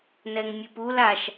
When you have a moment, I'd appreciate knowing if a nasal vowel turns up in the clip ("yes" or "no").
no